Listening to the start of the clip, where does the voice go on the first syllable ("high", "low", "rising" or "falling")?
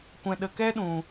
low